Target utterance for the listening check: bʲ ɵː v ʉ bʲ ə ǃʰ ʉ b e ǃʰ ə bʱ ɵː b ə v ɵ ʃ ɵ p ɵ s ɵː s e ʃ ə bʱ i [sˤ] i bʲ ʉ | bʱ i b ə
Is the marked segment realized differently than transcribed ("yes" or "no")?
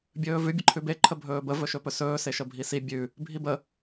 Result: yes